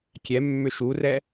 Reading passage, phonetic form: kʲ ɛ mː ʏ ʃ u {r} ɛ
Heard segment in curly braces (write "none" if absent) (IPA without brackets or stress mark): r